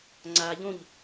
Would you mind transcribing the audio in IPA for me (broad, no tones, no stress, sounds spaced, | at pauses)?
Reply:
ŋ͡ǀ a ʎ õ ʎ